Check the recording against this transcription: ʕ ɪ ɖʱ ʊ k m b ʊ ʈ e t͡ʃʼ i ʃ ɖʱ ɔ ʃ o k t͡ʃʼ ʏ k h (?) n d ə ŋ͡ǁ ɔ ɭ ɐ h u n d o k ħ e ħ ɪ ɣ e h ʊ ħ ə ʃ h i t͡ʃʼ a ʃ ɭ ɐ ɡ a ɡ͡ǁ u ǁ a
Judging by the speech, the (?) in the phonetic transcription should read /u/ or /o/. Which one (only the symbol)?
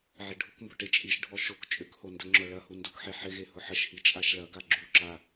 o